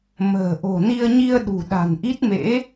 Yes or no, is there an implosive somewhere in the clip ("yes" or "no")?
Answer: yes